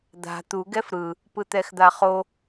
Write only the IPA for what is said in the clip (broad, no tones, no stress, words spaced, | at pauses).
d̪a̤ t̪u ɡɛfɾɯ | pɯt̪ɛxd̪aχo